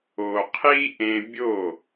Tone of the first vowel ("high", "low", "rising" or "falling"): low